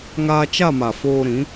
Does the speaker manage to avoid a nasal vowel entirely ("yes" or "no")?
no